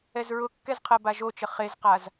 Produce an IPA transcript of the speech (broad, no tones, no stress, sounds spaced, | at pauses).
ɛ z ɹ ʊ kː ɛ z qʰ ɜ b a ʒ o t͡ʃ ə χ e z q a z